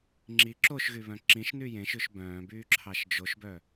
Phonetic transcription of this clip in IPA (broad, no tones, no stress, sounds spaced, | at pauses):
ŋ͡ǁ i ǁ o ʃ ɣ y β œ̃ ǁ ĩ ʃ n y j ẽ ʃ ʉ ʃ b œ̃ː b yː ǁʰ ɑ ʃ d͡ʒ o ʃ b œ